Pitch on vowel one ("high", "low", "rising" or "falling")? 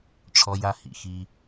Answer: high